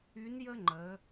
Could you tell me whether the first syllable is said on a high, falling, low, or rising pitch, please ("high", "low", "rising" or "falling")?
rising